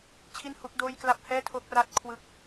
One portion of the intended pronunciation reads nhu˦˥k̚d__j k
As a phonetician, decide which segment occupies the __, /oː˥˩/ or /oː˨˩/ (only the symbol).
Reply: oː˥˩